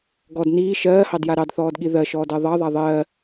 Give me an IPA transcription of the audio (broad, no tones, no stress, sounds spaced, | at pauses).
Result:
ɡ ɔ d n iː ʃ ɜː h ɑ d j a ɾ ɑ d θ ɔː d ɠ i ð ɜ ʃ ɔː d ɜ ðˤ ɑ ðˤ a ðˤ ɜː